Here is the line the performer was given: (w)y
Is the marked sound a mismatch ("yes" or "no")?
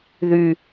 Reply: yes